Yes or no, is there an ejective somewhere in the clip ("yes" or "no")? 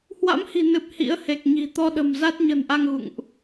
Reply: no